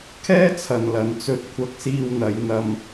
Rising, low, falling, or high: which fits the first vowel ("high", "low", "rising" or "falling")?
high